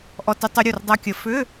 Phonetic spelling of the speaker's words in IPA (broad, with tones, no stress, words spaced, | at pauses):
ʔɔ˧tʏ˧ tˤɵ˧ ɾʲu˧˩rdˤa˧kʲə˨˩˦ fʏ˧˥˧